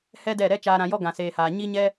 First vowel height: mid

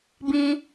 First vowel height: high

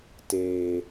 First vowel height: mid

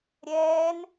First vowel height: mid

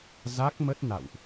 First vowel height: low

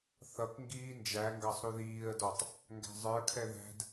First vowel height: mid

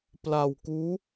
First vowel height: low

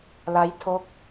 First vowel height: low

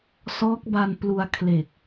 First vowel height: mid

